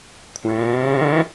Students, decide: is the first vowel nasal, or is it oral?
nasal